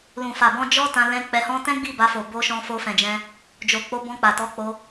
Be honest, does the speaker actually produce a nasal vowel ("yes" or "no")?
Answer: yes